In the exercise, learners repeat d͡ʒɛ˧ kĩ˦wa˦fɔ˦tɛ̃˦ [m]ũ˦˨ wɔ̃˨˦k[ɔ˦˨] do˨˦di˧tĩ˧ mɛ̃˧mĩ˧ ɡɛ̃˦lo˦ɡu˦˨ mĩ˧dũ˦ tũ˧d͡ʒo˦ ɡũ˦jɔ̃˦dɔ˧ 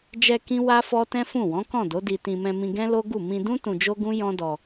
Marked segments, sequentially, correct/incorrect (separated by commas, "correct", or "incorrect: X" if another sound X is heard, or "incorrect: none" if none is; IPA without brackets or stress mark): incorrect: f, incorrect: ɔ̃˦˨